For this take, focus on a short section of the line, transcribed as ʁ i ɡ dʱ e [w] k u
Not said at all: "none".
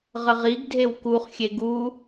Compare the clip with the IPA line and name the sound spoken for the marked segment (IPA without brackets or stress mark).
w